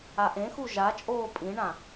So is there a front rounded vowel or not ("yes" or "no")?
no